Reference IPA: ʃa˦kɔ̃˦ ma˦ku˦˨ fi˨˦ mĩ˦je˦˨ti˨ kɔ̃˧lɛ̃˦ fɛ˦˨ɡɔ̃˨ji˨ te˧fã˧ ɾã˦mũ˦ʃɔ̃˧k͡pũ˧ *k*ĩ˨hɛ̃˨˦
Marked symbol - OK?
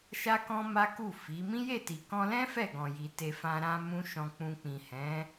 no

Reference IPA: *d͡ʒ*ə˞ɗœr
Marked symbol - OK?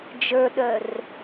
yes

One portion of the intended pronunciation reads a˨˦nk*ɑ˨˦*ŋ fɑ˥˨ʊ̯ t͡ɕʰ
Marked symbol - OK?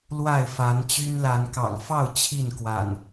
no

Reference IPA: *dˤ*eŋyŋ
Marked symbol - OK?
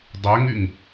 yes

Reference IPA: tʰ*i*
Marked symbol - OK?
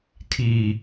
yes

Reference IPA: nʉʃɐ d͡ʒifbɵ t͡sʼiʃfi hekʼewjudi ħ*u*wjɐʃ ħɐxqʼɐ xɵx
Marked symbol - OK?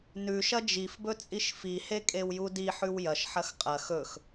no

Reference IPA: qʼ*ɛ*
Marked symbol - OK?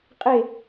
no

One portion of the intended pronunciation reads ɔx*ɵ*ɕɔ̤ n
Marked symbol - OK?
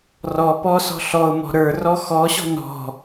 no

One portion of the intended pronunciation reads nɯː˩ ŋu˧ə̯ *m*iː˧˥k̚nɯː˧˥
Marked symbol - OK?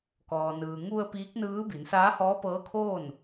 no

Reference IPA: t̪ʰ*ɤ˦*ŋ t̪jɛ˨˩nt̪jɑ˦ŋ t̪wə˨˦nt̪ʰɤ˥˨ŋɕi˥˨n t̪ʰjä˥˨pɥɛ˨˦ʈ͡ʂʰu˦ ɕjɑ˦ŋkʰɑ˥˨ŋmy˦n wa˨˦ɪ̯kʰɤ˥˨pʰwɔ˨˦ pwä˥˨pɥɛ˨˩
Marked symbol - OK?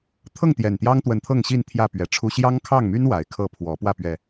no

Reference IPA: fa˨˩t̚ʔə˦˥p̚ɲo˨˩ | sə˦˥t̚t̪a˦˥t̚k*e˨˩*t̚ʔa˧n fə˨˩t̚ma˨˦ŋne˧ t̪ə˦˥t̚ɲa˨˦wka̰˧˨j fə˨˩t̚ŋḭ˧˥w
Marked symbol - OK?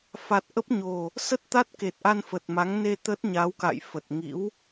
yes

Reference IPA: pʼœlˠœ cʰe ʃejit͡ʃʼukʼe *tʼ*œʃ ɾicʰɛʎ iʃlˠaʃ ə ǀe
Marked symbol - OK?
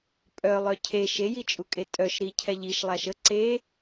yes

